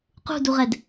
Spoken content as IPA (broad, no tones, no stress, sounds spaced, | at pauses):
q ṳ d u ʁ ɛ d